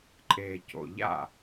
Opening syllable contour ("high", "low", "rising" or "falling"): low